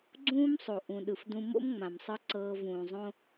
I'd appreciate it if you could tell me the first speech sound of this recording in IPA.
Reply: ɡ͡ǀ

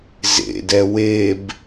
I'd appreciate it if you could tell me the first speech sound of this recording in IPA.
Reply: z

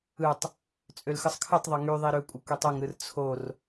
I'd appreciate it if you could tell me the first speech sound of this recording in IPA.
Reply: ɯ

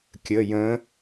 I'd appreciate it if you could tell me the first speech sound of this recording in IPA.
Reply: kʲ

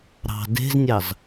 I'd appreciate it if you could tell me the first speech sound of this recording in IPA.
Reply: ɾ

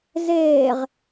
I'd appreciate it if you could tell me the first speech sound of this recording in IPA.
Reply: z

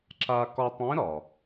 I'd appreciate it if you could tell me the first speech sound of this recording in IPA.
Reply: ǁ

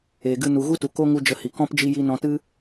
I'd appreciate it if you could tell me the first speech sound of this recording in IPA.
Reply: eː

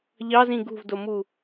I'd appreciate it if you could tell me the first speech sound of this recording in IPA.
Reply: ʎ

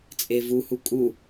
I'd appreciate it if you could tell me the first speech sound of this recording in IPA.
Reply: t͡sʼ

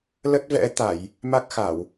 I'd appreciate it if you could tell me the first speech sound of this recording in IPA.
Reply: l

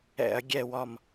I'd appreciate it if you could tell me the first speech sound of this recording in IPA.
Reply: ɛ̰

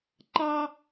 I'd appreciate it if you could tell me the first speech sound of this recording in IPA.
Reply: ǃ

